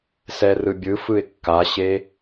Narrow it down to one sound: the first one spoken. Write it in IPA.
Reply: s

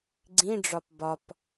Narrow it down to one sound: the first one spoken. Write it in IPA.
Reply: ɡ͡ǀ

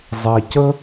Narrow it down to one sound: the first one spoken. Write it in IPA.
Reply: zˤ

